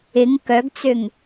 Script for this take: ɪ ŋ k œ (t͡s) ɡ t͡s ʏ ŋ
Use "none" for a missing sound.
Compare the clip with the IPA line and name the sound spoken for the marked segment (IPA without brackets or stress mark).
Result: none